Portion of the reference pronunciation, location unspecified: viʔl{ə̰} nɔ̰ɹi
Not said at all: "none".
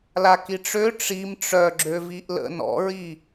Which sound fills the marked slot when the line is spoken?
ə̰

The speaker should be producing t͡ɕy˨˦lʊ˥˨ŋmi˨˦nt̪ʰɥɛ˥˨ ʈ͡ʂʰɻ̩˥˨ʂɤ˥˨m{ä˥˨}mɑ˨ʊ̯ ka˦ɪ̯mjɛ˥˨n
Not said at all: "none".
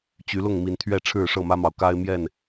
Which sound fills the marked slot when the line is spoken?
ä˦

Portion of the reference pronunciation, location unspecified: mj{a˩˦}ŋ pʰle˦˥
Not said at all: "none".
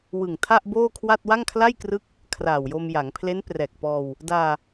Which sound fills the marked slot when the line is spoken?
a˩˦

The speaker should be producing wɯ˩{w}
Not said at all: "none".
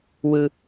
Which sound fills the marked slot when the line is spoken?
none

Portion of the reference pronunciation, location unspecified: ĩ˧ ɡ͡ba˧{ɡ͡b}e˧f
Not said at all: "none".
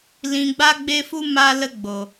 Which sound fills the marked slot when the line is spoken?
ɡ͡b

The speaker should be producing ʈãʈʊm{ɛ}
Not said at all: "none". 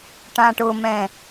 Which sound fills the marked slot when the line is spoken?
ɛ̃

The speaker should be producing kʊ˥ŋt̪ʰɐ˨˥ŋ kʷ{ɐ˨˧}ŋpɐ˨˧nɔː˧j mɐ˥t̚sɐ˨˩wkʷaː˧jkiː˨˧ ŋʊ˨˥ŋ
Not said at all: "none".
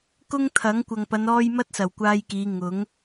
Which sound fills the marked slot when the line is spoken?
ɐ˨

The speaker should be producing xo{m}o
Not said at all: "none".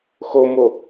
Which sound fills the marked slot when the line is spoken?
m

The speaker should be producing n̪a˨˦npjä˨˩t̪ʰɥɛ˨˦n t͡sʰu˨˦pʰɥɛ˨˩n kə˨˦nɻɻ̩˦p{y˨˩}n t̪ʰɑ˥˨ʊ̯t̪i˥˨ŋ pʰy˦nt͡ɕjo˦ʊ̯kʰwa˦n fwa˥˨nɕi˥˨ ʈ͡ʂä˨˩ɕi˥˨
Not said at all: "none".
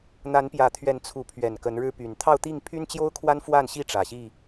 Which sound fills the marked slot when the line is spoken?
y˨˩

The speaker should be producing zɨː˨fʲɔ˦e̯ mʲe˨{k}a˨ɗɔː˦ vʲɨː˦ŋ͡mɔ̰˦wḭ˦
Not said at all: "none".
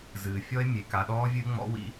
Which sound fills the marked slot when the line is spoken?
k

